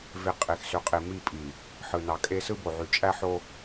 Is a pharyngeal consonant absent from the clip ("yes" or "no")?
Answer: no